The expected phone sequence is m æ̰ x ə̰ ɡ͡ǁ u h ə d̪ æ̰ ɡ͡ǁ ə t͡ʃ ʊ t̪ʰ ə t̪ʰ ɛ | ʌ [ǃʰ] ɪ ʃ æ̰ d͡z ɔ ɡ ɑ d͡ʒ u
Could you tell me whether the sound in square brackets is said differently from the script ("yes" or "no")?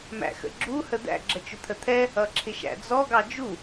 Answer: yes